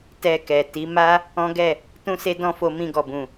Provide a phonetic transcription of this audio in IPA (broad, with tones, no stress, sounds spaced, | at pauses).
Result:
t ɛ˧ k ɛ˨ t i˨˦ m a˦ | ɔ̃˦ ɡ ɛ˦˨ | t ũ˦ s e˦ d ɔ̃˦ f o˧ m ĩ˧ ɡ ɔ˨ b ũ˨